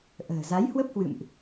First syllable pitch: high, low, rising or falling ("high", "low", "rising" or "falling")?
low